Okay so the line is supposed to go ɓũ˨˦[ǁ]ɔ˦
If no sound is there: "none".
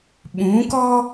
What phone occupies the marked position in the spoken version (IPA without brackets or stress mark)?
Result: k